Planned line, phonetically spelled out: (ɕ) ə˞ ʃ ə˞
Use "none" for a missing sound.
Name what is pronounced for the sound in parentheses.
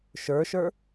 ʃ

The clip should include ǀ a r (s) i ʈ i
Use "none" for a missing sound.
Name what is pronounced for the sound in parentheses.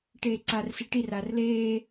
s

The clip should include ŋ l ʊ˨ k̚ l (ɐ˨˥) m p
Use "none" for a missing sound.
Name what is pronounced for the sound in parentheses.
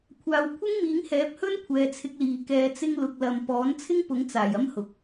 ɐ˨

